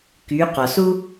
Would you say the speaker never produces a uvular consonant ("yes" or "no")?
no